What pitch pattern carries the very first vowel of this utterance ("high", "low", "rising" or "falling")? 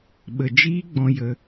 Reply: low